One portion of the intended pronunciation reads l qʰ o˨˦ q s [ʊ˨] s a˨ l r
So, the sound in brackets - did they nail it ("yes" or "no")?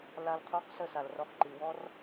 no